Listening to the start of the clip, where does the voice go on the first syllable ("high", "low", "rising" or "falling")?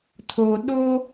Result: low